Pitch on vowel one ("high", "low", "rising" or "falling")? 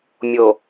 low